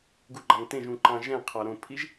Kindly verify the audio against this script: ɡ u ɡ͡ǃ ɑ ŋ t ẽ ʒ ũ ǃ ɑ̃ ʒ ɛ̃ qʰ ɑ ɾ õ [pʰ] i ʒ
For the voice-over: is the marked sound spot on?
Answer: yes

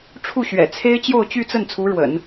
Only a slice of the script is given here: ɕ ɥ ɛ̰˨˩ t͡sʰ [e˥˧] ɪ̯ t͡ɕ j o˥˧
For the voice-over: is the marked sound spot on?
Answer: no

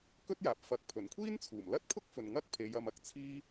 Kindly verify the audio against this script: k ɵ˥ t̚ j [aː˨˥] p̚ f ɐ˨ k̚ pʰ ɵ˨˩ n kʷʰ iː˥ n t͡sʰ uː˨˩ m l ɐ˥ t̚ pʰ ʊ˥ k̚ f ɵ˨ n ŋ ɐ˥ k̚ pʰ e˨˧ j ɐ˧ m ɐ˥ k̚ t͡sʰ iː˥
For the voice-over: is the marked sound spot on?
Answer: yes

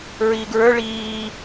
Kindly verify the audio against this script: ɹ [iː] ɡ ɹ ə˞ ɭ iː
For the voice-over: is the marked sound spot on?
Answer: yes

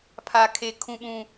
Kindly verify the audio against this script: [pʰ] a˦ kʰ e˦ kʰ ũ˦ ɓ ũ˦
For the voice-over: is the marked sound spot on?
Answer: yes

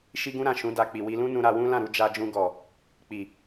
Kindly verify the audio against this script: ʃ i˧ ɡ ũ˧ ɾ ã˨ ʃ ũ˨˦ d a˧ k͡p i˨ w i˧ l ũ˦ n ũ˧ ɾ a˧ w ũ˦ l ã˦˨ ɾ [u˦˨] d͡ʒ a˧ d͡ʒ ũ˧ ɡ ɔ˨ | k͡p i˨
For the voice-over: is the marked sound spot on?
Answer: no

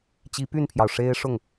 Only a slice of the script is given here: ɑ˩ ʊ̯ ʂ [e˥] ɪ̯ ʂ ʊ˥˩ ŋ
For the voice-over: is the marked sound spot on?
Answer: yes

